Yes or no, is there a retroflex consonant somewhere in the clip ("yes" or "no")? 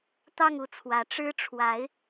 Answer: yes